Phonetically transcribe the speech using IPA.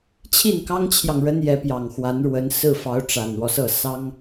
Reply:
t͡ɕʰ i˥˩ n k ɑ˥ ŋ t͡ɕʰ j ɑ˨ ŋ ɻ ə˥ n j ɛ˧˥ p j ɑ˨˩ ŋ x w a˧˥ n ɻ w ə˧˥ n s ɹ̩˥˩ f ɑ˧˥ ʊ̯ ʈ͡ʂ a˨˩ n w ɔ˦ s ɤ˥˩ s ɑ˥ ŋ

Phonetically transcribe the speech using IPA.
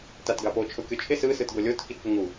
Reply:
t a t ɡ a p o t͡ʃʰ o kʲ o t͡ʃʰ ɪ s ɯ s ɯ t ɡ o lʲ o t k i t p ɪ ŋ u

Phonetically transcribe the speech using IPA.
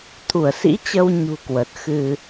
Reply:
t̪ʰ u˧˩ ə̯ s ḭ˧˥ t͡ɕ ə˧ w ɲ ṳ˨˩ k w ə˨˩ t̚ x ɨ˧

